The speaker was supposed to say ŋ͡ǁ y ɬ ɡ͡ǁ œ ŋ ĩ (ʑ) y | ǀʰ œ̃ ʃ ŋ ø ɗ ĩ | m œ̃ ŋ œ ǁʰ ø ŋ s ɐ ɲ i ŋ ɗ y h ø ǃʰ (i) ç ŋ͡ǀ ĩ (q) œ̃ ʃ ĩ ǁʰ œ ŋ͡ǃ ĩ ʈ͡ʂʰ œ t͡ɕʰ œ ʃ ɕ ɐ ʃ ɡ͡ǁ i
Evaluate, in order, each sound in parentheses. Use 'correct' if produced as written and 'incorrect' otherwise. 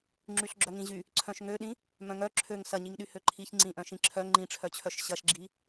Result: correct, correct, incorrect: ʔ

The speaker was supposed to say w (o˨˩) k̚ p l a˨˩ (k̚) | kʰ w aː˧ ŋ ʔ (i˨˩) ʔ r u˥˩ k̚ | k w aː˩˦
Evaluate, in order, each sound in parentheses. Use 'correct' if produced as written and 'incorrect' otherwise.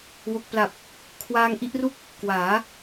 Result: correct, incorrect: p̚, incorrect: i˥˩

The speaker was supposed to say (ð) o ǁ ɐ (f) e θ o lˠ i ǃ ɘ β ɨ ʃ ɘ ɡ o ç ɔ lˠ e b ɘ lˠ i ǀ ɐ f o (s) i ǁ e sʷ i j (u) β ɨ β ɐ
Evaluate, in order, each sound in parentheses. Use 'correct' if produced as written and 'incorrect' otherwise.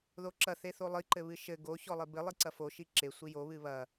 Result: correct, incorrect: θ, incorrect: ʃ, incorrect: o

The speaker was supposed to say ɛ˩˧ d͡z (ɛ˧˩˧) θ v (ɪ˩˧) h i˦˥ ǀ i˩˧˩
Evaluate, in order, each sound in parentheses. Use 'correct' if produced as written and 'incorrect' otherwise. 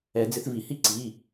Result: incorrect: ɪ˧˩˧, incorrect: i˩˧

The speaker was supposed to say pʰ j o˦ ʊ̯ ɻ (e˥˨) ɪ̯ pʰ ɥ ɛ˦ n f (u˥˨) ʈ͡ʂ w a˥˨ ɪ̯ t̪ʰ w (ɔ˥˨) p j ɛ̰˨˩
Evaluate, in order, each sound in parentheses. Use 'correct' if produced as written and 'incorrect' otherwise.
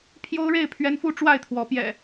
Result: correct, correct, incorrect: ɔ˨˦

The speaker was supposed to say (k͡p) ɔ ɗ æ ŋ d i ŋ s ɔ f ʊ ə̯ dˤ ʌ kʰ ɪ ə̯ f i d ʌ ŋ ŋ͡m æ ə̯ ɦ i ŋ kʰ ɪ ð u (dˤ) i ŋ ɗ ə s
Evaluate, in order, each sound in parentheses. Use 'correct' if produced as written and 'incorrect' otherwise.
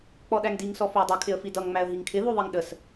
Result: correct, incorrect: ðˤ

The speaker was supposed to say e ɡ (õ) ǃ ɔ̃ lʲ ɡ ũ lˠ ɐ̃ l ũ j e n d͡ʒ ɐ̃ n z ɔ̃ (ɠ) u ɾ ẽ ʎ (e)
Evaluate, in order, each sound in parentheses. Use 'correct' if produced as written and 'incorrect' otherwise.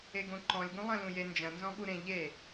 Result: correct, correct, correct

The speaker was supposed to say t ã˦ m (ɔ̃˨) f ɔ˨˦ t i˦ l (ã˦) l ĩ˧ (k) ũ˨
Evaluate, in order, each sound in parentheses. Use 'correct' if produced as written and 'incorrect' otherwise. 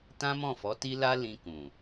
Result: incorrect: ɔ̃˦˨, incorrect: a˦, correct

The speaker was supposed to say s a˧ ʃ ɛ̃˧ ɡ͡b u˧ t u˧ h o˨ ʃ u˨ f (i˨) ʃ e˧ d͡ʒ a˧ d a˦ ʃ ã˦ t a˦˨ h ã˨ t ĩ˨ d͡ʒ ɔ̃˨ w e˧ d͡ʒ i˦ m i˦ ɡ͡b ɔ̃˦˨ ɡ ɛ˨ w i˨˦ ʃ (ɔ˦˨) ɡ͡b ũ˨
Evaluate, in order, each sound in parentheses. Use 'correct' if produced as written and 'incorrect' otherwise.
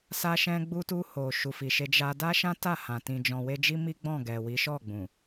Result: correct, correct

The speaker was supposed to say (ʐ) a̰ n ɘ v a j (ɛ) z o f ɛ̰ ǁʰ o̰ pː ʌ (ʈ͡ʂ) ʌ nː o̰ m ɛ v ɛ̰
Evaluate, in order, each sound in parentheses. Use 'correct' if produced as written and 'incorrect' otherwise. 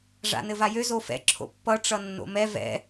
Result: correct, incorrect: ø, correct

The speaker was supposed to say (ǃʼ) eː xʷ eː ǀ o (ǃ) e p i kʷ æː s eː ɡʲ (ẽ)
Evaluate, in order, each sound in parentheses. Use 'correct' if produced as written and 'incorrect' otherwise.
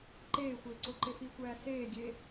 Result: incorrect: ǃ, correct, incorrect: e

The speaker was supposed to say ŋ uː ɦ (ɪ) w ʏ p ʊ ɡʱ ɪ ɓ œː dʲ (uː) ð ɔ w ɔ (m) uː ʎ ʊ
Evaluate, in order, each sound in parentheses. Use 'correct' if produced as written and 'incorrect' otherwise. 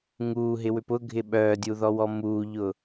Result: correct, incorrect: u, correct

